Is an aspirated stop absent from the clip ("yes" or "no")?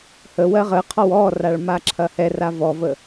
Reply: no